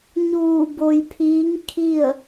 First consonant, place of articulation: palatal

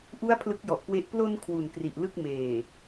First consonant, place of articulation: glottal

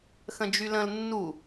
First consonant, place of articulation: velar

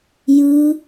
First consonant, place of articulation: palatal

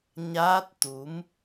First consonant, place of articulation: palatal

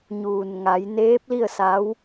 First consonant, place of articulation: palatal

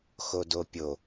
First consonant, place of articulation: velar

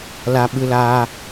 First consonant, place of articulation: alveolar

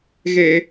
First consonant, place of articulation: velar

